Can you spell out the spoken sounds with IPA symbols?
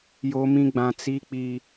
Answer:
j o˦ m ĩ˦ ɡ͡b ã˦ t͡s i˦ k͡p i˦

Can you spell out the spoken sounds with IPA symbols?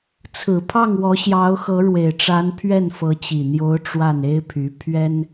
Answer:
t͡sʰ ɹ̩˨˩ pʰ ɑ˥˩ ŋ w ɔ˧˥ ɕ j ɑ˧˥ ʊ̯ x ɤ˧˥ ɻ w e˨˩ ɪ̯ ʈ͡ʂ a˧˥ n pʰ ɥ ɛ˥˩ n f ɤ˧˥ t͡ɕ i˨˩ n̪ j o˧˥ ʊ̯ ʈ͡ʂ w a˥˩ n e˥ ɪ̯ pʰ y˧˥ pʰ ɥ ɛ˥ n

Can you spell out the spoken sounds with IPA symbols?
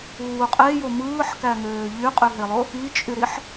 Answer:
uː qʼ e j o m ɯː ħ k æ ŋ øː ʎ y qʼ y ɦ e lˠ o | i t͡ʃʼ y ɾ i ħ

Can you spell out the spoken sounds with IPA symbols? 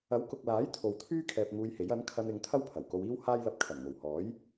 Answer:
ɐ˨˥ w k ʊ˨ k̚ l aː˨˥ j t̪ʰ o˨ w t̪ʰ yː˥ kʰ ɛː˨ p̚ ŋ uː˧ j h e˨˥ j ɐ˨˥ n kʰ ɐ˧ n ɪ˨˧ ŋ t̪ʰ ɐ˥ w pʰ ɐ˨˩ w k o˧ w iː˥ w h aː˥ j l ɐ˧ p̚ kʰ ɐ˨˩ n ŋ o˨˩ w h ɔː˨˥ j

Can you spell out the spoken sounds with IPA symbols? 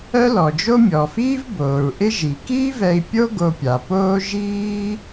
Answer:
œ˥ l ɔ˩ d͡ʒ o˥ mʲ ɔː˩ f iː˥ v b oː˩ ɹ ʔ ɪ˥ ʒ i˩ k iː˥ v ɛ˧ i̯ pʲ o˥ ɡ o˧ pʲ a˩ p oː˥ ʒ iː˥

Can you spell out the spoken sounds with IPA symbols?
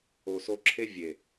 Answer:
o˨ s o˧ ǁʰ e˦ vʲ e˨

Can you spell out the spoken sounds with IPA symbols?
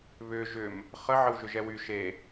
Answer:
β ʏ ʒ ʏ m | χ ə ʕ ə w ʒ ʏ ʒ ɛ w y ʃ e

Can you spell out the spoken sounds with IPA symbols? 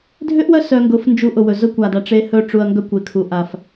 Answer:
dʱ ʏ˦ ʔ w œ˦ s œ˧ ŋ ɡ ʊ˨˦ f n d͡ʒ u˧ ʔ ʊ˨ w ɵ˨ z ʊ˦ kʷ a˨ d a˧ ʈ͡ʂ e˧ h ɵ˧ ʈ͡ʂ u˨ ɐ̯ ŋ ɡ œ˦ kʷ e˨ kʰ u˨ ʔ a˨ f

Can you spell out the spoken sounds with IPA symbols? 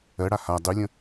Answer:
ɜ ɽ a h a dˤ y lʲ ə̃

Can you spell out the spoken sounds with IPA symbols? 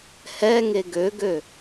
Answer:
h ɛ ŋ e ɡ ø ɡ ø

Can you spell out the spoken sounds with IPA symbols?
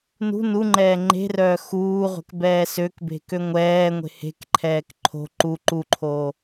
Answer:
n ṳ n u ŋ͡ǃ ɛː ŋ͡ǃ e̤ r œː x uː ʁʷ ɛ̤ k b ɛː s ø k b e̤ k ø ŋʷ ɛː ŋʷ e̤ h e̤ k ǃʰ ɛː k ǃʰ o̤ ǃ u ǃ u ǃʰ oː

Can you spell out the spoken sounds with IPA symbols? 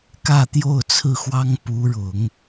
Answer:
k ä˥˧ t̪ j o˥˧ ʊ̯ t͡sʰ ɹ̩˥˩ x w ɑ˥ ŋ p u˧˥ ɻ ʊ˨˩˦ ŋ

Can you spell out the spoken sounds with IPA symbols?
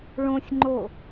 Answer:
ɭ õ sʲ ŋ͡ǃ o

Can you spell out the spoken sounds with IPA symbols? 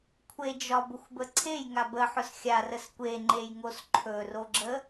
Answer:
kʷʰ e d͡ʒ ɒ b ʊ xʷ b ə ǀʰ e j ŋ a b ə ħ ʊ s xʲ a r ə s kʷ e ŋ͡ǃ e j ŋ o s ǃʰ ɵ r o ɡ͡ǁ ə

